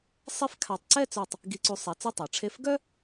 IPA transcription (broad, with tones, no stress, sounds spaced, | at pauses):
sˤ e˥ f kʰ a˧˩ tˤ ǀ ɛ˥˧ t͡s œ˧˩ tˤ | ɡ i˧ ǀ u˧ sˤ ɛ˧ t͡s ɛ˥ tˤ a˩˧ ʈ͡ʂʰ e˥˧ f ɡ œ˥